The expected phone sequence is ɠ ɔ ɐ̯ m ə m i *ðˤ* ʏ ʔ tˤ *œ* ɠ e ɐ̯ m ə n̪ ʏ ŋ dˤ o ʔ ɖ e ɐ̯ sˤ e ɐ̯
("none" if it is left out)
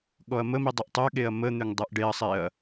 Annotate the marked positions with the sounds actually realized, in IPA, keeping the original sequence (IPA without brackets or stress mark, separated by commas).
dˤ, œ